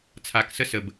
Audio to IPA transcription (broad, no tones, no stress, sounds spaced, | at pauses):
t͡sʰ a k s ə s ə b